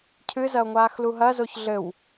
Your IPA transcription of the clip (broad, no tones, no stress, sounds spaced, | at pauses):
cʰ ɨ z ɐ o̯ ŋʷ aː x l u ɦ ɐ z o ç ɮ ɘ w